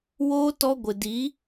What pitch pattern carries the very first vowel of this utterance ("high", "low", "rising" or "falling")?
high